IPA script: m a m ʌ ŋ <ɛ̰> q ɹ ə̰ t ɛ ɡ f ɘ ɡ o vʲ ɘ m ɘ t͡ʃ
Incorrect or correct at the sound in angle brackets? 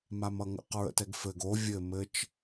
incorrect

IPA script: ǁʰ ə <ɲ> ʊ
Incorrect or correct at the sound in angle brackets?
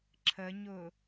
correct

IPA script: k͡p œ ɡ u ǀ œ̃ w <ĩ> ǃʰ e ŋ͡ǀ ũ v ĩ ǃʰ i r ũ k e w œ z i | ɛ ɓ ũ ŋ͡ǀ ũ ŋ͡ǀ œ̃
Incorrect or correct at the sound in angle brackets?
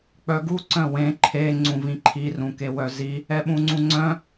incorrect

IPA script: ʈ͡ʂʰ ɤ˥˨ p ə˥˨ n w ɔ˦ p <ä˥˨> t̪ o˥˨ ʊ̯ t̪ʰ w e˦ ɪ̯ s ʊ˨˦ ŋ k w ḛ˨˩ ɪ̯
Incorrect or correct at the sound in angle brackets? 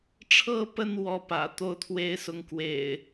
incorrect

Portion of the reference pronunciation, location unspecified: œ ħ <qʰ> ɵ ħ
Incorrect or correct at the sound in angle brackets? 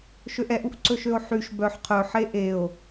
correct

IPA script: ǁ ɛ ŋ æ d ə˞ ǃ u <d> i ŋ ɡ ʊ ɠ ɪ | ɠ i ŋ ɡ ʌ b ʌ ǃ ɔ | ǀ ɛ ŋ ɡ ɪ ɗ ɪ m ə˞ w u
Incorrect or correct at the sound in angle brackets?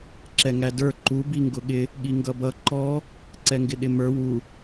incorrect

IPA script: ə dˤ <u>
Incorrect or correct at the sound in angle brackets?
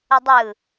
incorrect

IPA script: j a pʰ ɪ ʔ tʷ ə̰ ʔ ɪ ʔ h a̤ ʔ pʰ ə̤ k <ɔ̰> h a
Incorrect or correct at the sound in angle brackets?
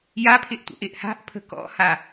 correct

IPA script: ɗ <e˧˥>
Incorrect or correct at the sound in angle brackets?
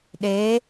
correct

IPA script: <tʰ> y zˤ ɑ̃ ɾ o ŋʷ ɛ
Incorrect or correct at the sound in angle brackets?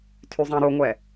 correct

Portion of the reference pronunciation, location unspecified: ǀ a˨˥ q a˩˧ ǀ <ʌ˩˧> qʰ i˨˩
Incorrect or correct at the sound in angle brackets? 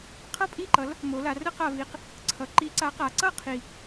incorrect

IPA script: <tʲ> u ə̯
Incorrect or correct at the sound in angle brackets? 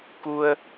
incorrect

